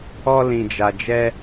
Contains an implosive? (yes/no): no